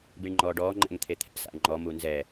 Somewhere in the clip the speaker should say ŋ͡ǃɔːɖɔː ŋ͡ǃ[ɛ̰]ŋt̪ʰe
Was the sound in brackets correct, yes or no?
yes